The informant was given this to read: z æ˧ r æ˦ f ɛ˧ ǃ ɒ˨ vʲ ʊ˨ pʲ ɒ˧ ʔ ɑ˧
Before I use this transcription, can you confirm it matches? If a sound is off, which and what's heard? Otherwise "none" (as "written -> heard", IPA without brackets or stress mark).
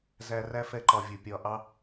none